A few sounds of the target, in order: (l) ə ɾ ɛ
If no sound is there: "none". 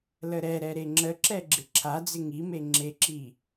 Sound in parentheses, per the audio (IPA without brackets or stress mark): l